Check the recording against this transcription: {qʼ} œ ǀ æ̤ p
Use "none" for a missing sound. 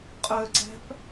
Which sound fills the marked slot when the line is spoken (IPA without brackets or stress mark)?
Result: qʼ